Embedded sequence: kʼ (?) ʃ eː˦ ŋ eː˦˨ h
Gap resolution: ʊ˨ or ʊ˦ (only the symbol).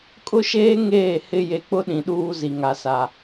ʊ˦